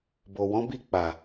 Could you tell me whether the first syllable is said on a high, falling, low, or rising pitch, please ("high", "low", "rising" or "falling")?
low